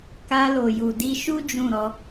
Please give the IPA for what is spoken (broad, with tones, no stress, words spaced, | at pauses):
ka˧lo˨ju˨ di˧ʃu˦ d͡ʒũ˦˨ɾɔ˧